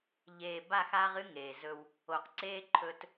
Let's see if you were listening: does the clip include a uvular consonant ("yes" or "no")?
yes